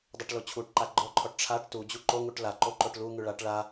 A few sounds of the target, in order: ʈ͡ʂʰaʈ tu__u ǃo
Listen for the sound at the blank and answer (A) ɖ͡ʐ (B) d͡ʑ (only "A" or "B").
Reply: B